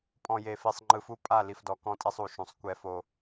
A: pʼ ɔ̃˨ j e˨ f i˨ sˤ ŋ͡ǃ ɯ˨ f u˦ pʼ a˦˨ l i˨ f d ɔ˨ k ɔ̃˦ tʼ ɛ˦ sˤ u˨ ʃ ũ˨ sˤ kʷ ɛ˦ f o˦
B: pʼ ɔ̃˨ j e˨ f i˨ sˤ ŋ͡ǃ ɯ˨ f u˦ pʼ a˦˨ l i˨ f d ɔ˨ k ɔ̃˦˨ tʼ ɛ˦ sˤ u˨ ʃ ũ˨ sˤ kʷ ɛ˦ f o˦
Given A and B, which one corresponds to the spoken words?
B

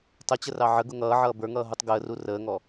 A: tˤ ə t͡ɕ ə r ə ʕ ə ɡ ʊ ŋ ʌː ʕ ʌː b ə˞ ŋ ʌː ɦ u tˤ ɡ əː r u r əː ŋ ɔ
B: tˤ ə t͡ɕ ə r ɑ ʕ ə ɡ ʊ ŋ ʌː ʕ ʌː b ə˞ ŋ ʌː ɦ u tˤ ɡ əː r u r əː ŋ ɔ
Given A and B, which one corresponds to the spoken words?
B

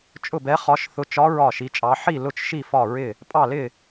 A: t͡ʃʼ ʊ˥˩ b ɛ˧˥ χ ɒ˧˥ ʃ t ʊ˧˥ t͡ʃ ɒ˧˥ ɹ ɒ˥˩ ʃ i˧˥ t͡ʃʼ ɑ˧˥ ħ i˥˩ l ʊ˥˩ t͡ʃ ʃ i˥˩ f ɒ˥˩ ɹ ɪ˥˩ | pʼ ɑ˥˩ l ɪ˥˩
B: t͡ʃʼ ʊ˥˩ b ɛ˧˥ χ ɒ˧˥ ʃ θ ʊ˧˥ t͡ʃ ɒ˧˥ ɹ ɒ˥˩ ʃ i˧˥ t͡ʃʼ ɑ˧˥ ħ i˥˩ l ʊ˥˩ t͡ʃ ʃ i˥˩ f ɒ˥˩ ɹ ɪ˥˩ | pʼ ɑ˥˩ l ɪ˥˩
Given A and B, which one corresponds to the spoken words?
B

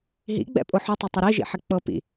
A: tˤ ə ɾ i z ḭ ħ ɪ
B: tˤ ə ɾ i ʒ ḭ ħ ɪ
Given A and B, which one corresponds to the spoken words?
B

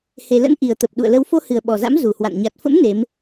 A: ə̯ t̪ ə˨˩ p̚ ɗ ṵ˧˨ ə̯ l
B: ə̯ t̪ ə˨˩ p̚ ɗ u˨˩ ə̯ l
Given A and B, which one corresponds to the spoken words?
A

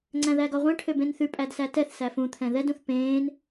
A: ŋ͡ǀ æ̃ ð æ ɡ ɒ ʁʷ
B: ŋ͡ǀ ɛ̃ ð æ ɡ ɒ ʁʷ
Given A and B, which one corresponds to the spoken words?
A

